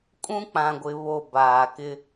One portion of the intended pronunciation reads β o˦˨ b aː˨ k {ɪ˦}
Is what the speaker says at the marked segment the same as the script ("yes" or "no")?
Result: yes